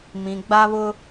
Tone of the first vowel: low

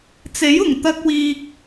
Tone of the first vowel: rising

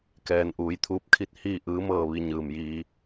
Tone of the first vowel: low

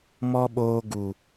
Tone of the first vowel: high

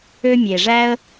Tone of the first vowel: high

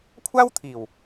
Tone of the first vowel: high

